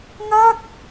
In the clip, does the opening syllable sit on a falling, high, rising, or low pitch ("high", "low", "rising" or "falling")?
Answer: falling